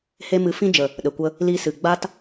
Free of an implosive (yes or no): no